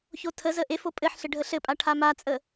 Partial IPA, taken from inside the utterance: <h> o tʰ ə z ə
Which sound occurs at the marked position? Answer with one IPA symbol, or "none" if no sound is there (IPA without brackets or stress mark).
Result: ç